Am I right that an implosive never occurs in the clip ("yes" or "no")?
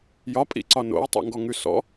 yes